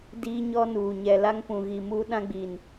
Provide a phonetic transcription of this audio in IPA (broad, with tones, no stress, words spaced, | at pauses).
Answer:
diː˦ɲɔ˦nuː˨ ɲɛ˨la˦ŋpũ˨ɣi˨ muː˦ɗã˦ɡ͡bi˨n